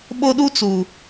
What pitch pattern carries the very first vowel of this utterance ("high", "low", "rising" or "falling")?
high